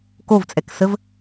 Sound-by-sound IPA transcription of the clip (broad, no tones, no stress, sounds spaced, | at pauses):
k o v t͡sʼ ɛ k s ə v